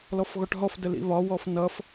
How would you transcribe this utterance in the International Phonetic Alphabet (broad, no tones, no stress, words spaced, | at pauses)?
lɔfɣɔʈɦɔf dəlḭβɒ wɔfnʌf